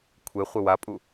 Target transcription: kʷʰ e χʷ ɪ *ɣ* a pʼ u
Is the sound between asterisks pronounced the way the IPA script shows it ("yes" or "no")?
no